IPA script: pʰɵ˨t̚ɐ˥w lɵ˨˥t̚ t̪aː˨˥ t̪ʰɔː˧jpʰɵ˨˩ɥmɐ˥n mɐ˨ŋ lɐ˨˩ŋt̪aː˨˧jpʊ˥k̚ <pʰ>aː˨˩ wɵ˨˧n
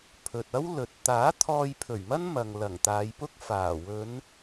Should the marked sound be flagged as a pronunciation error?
yes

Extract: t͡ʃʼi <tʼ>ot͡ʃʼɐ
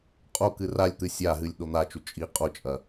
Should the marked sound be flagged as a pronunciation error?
yes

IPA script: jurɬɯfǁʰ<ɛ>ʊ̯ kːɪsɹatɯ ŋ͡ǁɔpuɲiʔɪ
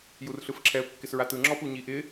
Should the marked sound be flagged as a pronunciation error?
no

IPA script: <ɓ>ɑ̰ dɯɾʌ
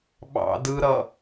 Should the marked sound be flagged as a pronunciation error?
no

